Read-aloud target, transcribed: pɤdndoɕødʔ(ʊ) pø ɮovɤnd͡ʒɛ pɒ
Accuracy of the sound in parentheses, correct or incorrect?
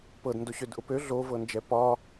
correct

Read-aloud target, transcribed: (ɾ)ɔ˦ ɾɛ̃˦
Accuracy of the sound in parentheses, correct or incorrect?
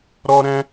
correct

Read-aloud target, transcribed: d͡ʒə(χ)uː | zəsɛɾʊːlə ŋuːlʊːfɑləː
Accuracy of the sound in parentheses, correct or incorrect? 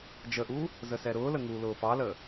incorrect: ʔ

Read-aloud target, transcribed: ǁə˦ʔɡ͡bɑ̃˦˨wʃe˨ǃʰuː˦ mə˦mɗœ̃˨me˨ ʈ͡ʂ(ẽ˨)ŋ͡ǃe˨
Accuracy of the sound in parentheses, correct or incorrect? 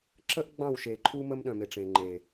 correct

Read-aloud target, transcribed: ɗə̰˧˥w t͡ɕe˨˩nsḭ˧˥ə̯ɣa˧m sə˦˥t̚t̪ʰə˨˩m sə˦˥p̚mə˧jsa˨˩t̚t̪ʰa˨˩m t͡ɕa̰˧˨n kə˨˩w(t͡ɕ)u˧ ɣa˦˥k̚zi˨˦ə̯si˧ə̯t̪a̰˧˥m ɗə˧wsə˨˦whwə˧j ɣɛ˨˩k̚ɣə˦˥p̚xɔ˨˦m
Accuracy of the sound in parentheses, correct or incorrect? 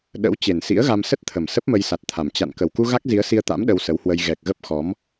incorrect: k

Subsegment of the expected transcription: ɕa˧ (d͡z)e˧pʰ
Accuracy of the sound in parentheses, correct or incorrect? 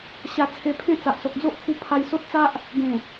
incorrect: t͡sʰ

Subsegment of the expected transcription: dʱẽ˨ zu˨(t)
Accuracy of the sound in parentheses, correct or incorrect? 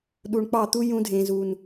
incorrect: n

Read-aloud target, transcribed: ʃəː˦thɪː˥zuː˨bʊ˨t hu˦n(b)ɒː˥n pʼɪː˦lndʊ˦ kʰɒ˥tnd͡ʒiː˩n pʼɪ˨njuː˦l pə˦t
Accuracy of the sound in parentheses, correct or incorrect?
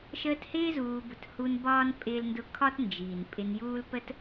correct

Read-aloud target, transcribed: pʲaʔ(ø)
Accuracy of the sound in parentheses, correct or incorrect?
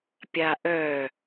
incorrect: œ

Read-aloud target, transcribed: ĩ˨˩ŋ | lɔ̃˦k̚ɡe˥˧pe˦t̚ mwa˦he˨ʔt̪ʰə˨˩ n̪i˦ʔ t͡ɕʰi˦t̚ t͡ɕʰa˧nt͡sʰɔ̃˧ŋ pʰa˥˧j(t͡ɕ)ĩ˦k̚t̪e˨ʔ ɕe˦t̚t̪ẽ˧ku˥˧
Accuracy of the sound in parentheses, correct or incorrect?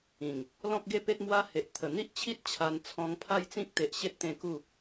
incorrect: t͡s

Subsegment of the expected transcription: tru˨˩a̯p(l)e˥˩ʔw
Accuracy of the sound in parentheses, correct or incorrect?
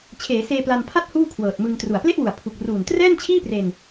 correct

